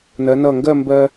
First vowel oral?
yes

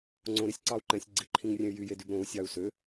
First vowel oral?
no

